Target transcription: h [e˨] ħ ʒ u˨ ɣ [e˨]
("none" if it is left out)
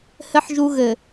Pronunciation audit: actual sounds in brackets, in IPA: ɘ˨, ɘ˨

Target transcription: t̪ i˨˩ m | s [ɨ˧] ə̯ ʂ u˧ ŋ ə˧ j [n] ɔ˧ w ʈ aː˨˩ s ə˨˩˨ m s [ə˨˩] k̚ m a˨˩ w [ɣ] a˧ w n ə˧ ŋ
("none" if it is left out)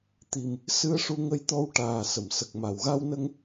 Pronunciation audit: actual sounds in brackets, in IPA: ɨ˧, t̪, ə˨˩, ɣ

